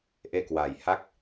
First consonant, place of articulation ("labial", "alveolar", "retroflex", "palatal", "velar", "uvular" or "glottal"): glottal